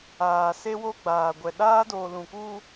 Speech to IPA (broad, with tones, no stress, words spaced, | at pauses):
aː˨se˦wo˦ɡ͡baː˨ ɡʷɛ˨ɗaː˦ doː˨lũ˨kuː˦